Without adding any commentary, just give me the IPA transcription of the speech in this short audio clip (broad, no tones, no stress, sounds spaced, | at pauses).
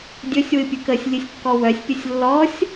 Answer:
dʲ ɵ sʲ w ɨ pʲ ɨ k ə sʲ lʲ ɨ sʲ kː ɔ w œ sʲ pʲ ə sʲ lː ɔ sʲ